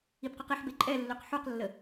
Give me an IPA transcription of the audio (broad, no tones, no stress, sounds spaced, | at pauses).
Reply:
i b q y q i ħ b e ǃʼ ɛ lː ø q ħ u q lː ə